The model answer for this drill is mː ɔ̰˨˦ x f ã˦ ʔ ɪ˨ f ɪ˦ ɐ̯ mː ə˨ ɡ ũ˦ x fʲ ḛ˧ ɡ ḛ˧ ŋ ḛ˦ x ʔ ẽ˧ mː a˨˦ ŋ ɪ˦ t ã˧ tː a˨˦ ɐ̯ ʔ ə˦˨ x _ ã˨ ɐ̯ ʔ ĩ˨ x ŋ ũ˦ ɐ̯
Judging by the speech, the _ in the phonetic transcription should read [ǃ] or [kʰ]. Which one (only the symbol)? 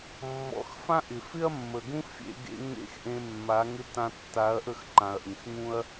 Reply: ǃ